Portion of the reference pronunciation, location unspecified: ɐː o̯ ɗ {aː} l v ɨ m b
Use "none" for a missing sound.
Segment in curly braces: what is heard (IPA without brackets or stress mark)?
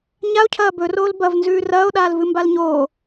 aː